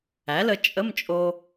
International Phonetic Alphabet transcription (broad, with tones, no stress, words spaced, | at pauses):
æ˩˥lə˧ t͡ʃʼə˧˥˧mt͡ʃʼo˧